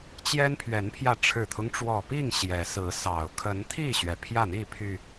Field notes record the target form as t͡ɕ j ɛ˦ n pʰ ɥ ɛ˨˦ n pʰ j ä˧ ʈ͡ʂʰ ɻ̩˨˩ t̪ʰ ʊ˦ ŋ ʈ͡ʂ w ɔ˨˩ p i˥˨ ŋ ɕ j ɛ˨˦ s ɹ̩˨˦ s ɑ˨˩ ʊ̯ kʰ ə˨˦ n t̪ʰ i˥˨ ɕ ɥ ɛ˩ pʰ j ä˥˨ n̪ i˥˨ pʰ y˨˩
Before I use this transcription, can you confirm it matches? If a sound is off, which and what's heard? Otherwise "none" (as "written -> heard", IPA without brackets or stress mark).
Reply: none